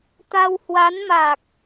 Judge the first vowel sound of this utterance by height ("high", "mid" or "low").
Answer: low